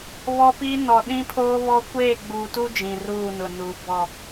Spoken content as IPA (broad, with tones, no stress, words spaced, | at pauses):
βɔ˦pi˦nɔ˨ ɗĩ˦pʰoː˦βɔ˦ kʷeː˦˨ɡ͡buː˨tu˦ d͡ʒĩ˨ruː˦˨nʊ˨ nu˨ bɔ˦˨